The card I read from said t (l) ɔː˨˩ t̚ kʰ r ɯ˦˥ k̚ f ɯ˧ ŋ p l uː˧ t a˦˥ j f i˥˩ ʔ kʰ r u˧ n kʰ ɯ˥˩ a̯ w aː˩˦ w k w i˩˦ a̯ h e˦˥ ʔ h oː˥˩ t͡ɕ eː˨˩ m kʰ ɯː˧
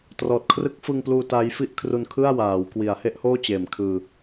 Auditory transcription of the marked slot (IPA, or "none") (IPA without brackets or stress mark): r